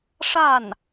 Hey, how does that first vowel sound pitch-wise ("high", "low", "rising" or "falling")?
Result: falling